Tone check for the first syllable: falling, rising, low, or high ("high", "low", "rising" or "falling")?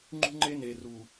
high